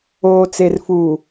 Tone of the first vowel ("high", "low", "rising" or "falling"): low